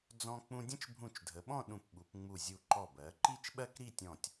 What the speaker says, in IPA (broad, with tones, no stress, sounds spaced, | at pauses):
d͡z ɔ̃˧ k͡p ũ˧ dʲ ə̃˥ t͡ʃ bʱ ũ˧˩ t͡ʃ dʱ ə˩˧ ɓ ɔ̃˥˧ ɗ ũ˧˩ p ɓ u˩˧ p ŋ͡m u˧˩ zʲ u˧˩ ǃ ɔ˧˩ b ɜ˩˧ ǃ i˥˧ t͡ʃ ɓ ɜ˥ k ɾ i˥˧ tʲ ɔ̃˧˩ tʲ